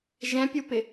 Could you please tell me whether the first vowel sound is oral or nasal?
nasal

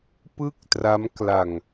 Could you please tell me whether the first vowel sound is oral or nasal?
oral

